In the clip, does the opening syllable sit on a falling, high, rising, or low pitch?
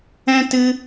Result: high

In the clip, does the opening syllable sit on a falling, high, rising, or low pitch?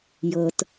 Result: low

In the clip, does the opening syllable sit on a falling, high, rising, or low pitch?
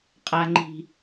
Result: low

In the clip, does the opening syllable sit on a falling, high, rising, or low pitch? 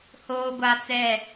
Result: high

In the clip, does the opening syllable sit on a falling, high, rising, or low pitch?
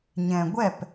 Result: low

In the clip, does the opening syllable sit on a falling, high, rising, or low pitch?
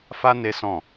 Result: high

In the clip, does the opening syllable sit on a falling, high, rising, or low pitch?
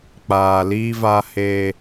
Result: low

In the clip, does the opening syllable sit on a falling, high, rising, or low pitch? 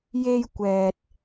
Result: high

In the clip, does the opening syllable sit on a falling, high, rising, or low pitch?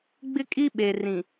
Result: high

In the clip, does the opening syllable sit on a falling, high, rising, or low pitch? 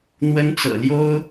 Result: high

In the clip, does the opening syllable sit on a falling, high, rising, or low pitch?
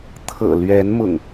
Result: low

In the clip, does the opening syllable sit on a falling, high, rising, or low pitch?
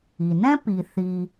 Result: low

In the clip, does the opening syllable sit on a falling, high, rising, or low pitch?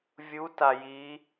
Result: rising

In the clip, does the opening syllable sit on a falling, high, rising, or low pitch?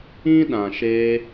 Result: high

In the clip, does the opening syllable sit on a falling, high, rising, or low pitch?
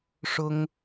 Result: high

